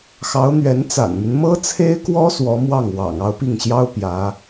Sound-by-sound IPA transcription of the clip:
x ɑ˧˥ ʊ̯ n̪ ɥ ɛ˧˥ n t͡s a̰˨˩ n m y˦ n m ɤ˥ t͡sʰ e˥ ɪ̯ k w ɔ˥ s w ɔ˧˥ m w ɑ˥˩ ŋ w ɑ̰˨˩ ŋ ɑ˥˧ ʊ̯ p i˥˩ ŋ ɕ j ɑ˥ ʊ̯ p j ä˧˥

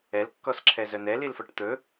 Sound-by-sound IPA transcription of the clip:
ɛ l kː ɔ s ǁʰ ɛ z œ n ɛ l i l f ɔ ʈ t̪ ɵ

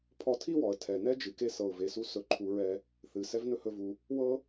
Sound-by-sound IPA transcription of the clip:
pʰ ɔ˧ tʰ i˥ w ɔ˩ ə̯ tʰ ɛ˩ n ɛ˥ d͡ʒ ɨ˩ k e˧ s ɤ˩ ʊ̯ v e˩ s u˧ s ɵ˩ ǃʰ u˩ ɹ ɛ˩ | θ ɨ˩ s ɛ˥ v n ɵ˥ h ɵ˧ v u˩ | w ɤ˥

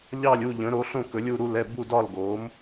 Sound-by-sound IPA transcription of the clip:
ʎ ɑ˥˧ lʲ u˥˧ ʎ ə̃˨˥ ɾ o˨˥ ɬ õ˥˧ k ɵ˨˥ lʲ u˥˧ ɾ u˥˧ l ɛ˥˧ b u˥˧ d ɒ˥˧ l ɡ o˨˥ m

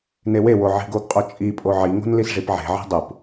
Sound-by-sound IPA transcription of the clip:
n e w e w o ʕ i̤ ɡ o ɡ qʼ o t͡ʃʼ i pʼ o ʕ i ŋ o̤ n l i s ʐ i p ʕ e̤ ʕ e̤ dˤ u p

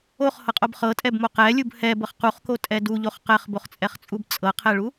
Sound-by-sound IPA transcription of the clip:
o χ h ɤ qʼ o b χ ɤ tʼ ɛ b m o q ɛ lʲ u b h ɛ b ɤ χ q u χ k o tʼ ɛ d u ʎ o χ q ɛ χ b o χ t͡sʼ ɛ χ t͡sʼ u b t͡sʼ ɤ qʰ ɛ ɭ u

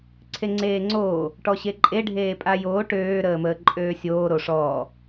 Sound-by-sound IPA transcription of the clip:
ǀʰ e ŋ͡ǀ eː ŋ͡ǀ oː | ʈ ɔ ɕ e ǃʼ e ɖʱ eː pʼ a j oː ʈ øː ɾ əː m əː ǃʼ øː sʲ oː ɾ o ʂ ɔː

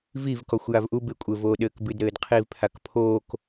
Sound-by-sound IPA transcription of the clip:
v i v k ɔ xʷ j a v ʔ u b e kʷʼ ɘ v oː ɗ ɘː k b ɨ d ɾ ɘː d qʰ iː v pʰ a k pʰ oː k

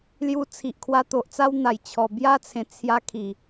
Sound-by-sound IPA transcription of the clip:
l j u˧ t͡sʰ i˨ ʔ kʰ w a˧ t̪ o˨ ʔ t͡s a˦ w n̪ a˨˩ j t͡ɕʰ ɔ˨˩ b j a˦ t͡sʰ ẽ˨˩ t͡sʰ j a˧ kʰ i˨˩

